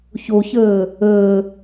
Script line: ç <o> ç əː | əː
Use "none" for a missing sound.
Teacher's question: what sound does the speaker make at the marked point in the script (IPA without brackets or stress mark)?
o